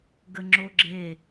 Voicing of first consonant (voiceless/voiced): voiced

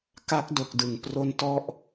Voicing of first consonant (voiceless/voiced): voiceless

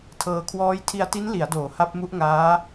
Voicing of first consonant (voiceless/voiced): voiceless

